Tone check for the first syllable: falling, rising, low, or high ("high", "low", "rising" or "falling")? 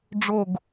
falling